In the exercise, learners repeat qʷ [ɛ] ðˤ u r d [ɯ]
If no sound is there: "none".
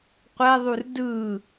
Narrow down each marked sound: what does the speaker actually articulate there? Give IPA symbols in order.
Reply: ɛ, ɯ

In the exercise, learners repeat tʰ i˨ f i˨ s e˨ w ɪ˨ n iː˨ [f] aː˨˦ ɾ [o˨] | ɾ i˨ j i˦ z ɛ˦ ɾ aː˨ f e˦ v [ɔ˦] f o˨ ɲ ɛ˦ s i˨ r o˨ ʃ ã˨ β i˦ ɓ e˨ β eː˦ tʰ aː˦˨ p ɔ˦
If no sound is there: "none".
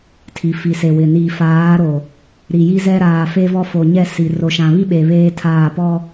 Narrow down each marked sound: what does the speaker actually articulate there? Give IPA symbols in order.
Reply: f, o˨, ɔ˦

